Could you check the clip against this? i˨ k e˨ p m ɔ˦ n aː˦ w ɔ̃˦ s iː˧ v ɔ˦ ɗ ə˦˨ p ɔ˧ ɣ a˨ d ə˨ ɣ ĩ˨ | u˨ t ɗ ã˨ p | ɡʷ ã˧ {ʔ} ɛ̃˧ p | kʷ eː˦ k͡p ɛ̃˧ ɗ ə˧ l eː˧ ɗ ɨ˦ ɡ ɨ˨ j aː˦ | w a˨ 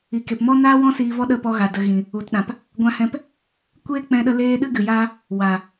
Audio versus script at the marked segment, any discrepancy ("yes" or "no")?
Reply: yes